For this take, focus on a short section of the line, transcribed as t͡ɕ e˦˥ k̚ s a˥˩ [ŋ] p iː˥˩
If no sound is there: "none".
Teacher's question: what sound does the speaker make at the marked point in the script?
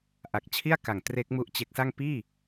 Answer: ŋ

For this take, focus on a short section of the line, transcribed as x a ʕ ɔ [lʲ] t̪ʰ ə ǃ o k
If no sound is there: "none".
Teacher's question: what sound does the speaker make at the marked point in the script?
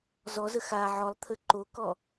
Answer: lˠ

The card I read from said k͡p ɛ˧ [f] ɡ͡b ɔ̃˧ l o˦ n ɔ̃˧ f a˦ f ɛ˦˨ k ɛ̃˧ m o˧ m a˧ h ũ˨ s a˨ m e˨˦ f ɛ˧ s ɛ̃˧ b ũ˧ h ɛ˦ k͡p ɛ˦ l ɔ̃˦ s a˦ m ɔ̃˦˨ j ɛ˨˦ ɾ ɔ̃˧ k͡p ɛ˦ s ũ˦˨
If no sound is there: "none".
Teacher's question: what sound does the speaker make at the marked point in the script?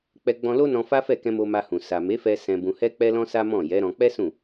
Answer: none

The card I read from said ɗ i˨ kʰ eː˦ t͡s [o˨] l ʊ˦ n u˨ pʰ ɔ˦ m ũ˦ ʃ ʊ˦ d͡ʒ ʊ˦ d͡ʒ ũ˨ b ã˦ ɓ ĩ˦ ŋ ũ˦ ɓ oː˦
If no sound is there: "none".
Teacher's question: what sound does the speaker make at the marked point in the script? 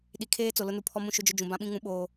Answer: o˨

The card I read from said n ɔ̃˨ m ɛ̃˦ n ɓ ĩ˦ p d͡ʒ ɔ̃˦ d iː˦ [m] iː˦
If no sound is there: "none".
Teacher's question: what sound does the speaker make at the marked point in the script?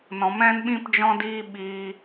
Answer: ɓ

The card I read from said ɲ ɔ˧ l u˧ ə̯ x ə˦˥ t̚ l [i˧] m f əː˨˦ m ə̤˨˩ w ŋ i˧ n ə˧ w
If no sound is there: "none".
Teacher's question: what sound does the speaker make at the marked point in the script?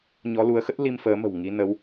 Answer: i˧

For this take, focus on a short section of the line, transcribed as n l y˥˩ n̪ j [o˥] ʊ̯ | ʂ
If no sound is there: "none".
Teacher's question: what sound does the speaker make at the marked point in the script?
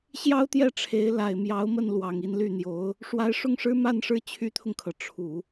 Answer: o˧˥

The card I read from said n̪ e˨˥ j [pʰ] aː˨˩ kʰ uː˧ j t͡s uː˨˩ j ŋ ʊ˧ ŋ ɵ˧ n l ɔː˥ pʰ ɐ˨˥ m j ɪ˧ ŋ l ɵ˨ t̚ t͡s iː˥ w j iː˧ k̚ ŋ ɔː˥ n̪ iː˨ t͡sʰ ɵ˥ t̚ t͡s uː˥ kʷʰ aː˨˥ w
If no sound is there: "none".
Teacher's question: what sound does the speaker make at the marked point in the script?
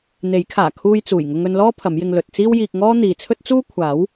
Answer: kʰ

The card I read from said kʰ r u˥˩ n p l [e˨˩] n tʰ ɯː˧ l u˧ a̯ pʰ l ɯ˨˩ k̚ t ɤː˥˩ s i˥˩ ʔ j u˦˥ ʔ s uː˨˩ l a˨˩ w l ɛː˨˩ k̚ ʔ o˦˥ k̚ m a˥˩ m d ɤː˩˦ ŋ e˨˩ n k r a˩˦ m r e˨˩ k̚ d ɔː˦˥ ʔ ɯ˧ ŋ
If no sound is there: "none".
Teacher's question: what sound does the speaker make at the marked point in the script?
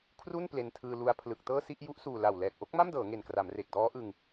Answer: e˧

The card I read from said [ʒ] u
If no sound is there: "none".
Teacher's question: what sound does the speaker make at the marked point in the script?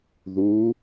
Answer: ð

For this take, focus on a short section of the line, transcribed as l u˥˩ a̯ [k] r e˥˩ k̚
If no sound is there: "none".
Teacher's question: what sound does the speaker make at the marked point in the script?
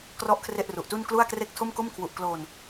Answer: k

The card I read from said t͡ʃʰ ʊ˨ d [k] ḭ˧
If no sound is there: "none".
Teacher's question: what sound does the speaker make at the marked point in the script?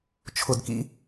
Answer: k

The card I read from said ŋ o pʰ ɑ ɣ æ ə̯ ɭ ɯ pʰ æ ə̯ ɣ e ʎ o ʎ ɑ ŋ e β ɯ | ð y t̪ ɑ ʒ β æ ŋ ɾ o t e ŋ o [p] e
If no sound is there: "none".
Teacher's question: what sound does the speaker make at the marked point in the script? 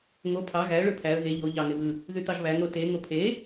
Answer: pʰ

